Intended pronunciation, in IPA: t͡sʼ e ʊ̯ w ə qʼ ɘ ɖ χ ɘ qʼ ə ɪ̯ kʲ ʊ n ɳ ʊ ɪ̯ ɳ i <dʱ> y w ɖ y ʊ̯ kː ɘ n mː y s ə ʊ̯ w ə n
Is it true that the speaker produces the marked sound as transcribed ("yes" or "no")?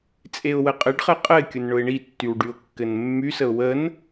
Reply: no